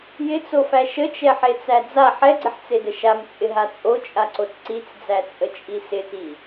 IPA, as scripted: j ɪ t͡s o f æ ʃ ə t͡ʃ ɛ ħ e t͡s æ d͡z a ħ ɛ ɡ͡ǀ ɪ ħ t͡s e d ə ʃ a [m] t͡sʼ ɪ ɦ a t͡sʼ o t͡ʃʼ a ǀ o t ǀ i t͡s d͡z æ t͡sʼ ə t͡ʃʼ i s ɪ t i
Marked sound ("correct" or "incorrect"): correct